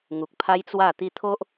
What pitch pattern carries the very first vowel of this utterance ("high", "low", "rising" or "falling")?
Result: low